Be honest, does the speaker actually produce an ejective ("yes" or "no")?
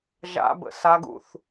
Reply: no